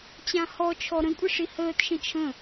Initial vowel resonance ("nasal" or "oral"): nasal